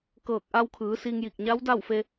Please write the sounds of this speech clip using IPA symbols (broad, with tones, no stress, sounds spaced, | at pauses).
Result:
k ɤː˧˩ k̚ ʔ a˧ w kʰ ɯː˩˧ s i˧ ŋ j i˧˩ k̚ ɲ a˧˥ w d a˥˨ w f e˧